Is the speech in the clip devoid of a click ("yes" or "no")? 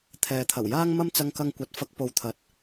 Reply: yes